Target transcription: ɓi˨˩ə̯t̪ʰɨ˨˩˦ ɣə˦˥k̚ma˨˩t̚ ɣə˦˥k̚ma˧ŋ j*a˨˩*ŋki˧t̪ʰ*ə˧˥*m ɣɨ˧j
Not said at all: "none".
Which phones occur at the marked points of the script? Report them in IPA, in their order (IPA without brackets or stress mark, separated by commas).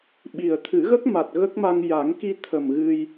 a˨˩˦, ə˨˩